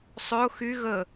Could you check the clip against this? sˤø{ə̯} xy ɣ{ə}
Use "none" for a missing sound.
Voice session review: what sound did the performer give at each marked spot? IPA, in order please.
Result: ʊ̯, ə

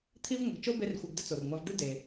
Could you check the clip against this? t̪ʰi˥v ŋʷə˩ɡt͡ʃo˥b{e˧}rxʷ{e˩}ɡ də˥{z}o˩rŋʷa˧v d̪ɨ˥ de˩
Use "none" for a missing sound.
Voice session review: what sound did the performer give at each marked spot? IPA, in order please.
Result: e˧, i˩, t͡s

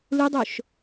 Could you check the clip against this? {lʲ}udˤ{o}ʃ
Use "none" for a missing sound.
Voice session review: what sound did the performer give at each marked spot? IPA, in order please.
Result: l, o

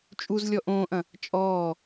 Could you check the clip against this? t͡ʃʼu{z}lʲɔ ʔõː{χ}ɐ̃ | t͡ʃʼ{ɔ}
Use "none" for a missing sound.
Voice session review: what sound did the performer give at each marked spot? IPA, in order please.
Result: z, ʔ, ɔː

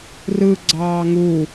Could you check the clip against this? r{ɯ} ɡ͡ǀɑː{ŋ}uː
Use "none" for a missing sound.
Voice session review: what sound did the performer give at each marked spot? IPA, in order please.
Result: ɯ, ŋ

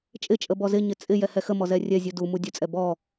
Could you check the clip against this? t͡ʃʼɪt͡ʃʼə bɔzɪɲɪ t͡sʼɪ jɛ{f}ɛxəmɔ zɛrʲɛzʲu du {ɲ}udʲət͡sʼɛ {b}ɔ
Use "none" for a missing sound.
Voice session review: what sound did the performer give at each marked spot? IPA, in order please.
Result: h, m, b

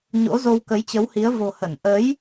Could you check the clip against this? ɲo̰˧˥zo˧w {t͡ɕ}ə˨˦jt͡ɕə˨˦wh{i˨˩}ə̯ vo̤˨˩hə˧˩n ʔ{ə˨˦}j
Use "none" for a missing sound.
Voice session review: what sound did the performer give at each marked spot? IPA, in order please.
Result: k, i˨˦, ə˨˦

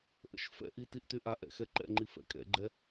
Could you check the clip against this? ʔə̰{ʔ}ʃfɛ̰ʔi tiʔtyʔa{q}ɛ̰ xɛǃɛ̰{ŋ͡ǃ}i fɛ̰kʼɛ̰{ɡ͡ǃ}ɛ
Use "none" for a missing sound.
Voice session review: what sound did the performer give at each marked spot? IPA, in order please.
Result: none, ʔ, ŋ͡ǃ, ɡ͡ǃ

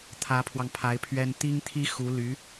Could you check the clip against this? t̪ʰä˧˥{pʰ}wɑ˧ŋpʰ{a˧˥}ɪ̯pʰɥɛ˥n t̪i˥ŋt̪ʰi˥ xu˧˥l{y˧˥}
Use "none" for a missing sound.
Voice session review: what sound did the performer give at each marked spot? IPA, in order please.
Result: pʰ, a˧˥, y˧˥

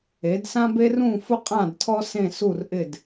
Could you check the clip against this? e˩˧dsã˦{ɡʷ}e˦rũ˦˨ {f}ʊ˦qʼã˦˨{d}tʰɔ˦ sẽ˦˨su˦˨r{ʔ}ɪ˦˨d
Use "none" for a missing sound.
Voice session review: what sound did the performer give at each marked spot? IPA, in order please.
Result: b, f, d, ʔ

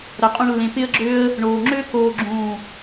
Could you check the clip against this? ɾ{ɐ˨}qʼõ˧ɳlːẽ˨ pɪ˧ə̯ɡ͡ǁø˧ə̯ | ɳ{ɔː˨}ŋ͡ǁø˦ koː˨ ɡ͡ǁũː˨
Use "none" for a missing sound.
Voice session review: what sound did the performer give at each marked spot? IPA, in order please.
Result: ɐ˨, oː˨

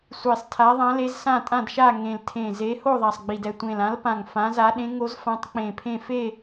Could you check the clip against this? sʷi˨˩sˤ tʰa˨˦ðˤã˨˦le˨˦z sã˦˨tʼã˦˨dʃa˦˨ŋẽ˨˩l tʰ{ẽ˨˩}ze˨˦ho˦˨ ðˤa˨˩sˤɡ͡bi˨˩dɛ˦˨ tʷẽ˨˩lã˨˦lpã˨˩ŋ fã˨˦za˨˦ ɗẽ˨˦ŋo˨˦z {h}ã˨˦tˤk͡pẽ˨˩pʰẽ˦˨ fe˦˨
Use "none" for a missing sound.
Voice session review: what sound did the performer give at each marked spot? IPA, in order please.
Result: ẽ˨˩, f

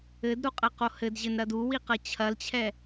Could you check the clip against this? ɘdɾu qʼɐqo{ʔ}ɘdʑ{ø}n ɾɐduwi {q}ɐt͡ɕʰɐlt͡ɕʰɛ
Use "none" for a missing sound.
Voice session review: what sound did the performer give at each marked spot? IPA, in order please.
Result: h, ɘ, q

